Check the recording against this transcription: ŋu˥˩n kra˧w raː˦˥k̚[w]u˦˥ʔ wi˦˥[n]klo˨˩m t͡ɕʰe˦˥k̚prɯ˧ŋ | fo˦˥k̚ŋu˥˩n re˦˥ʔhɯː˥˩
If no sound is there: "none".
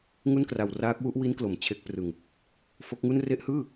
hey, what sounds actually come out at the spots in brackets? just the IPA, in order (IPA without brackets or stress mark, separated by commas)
w, n